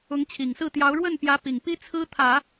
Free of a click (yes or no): yes